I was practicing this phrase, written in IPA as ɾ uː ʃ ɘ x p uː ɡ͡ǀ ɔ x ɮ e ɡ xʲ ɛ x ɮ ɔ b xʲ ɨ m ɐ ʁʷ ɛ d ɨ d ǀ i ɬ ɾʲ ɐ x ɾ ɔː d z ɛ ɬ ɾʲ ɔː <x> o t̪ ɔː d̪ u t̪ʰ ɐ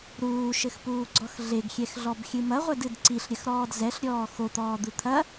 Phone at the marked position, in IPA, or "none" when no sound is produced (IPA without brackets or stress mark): x